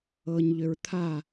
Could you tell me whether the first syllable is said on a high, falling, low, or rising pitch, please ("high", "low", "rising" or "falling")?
low